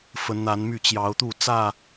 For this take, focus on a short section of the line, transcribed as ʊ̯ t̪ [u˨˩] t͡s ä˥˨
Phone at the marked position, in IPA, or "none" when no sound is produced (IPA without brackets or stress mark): u˥˨